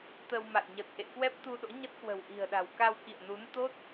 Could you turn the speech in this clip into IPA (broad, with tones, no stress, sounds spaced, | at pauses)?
t̪ ə˧ w m a̰˧˨ j ɲ ə˨˩ t̚ ʔ ḛ˧˨ k w ɛ˦˥ p̚ t̪ u˧ ɗ o̰˧˥ ɲ ə˦˥ t̚ k w ə̤˨˩ w ʔ i̤˨˩ ə̯ ɗ a̤˨˩ w k a˧ w k ḭ˧˨ ə̯ n u˨˦ n t̪ o˦˥ t̚